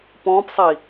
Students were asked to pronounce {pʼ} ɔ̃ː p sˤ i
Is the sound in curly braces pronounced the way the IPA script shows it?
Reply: no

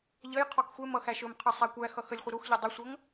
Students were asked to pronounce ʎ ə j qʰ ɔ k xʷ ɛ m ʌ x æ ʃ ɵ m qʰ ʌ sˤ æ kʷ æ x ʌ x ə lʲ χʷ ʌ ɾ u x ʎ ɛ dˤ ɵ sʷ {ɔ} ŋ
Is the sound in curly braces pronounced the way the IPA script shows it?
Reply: no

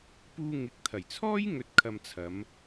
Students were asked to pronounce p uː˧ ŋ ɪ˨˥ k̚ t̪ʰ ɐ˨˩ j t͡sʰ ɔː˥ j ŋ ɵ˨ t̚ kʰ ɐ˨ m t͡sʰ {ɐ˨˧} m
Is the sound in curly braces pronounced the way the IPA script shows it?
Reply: yes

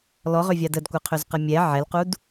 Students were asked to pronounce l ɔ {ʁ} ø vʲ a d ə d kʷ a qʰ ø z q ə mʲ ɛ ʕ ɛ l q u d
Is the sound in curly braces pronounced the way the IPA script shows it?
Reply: yes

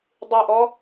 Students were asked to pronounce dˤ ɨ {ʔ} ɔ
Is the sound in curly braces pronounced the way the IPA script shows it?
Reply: yes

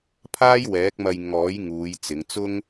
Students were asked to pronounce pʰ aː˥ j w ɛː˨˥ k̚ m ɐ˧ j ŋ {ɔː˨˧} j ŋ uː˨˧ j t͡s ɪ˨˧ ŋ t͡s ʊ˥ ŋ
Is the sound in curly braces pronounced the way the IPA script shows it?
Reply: no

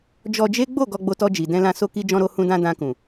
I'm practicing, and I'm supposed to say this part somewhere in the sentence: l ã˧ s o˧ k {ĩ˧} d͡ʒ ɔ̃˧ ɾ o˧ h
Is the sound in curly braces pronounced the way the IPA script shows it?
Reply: no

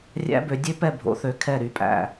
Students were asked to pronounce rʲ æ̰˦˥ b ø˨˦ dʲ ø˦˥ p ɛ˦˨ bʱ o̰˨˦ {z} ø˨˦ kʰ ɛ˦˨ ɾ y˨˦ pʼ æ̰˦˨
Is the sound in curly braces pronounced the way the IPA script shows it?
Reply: no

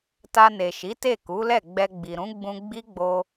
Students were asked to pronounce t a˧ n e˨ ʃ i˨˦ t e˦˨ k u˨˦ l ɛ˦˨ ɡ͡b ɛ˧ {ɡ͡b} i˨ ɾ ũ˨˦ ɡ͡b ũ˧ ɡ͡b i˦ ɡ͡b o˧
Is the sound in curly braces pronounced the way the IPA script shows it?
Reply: yes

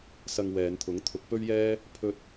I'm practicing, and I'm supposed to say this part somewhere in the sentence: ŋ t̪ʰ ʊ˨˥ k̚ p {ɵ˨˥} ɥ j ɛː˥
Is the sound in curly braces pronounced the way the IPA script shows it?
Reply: no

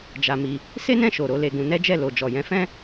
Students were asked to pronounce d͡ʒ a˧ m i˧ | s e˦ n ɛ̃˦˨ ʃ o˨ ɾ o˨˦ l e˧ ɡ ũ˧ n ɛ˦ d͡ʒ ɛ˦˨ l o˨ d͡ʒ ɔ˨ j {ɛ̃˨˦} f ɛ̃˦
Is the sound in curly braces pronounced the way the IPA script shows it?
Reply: yes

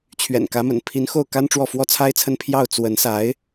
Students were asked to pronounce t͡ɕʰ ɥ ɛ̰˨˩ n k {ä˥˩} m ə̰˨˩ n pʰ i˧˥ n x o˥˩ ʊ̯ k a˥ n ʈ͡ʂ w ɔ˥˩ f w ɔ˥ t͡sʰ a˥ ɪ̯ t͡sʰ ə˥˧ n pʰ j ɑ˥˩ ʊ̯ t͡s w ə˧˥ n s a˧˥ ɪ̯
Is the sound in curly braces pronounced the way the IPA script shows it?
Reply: no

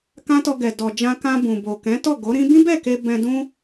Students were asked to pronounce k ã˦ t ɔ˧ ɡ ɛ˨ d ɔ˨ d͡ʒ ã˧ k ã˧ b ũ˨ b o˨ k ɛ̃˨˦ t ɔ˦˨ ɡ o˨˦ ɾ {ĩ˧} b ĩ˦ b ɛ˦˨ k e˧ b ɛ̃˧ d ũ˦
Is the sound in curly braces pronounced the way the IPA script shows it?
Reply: no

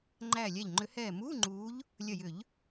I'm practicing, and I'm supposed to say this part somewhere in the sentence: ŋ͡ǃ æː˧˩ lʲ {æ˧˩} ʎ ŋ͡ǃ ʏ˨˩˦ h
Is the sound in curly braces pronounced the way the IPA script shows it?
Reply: yes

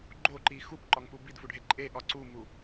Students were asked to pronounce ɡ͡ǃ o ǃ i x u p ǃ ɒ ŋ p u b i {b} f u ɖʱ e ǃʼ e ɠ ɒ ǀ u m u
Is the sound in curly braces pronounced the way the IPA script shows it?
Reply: no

